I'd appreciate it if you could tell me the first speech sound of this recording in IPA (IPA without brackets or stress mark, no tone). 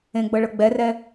ẽ